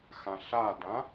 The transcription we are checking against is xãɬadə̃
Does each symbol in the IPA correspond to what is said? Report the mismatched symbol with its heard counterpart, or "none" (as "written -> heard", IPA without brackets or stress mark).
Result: ə̃ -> ã